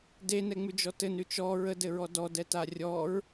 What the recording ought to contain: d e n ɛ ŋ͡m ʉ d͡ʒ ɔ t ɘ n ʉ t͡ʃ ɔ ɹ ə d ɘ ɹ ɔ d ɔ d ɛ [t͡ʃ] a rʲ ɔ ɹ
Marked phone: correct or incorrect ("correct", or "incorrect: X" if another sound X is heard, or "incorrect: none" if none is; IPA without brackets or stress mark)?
incorrect: t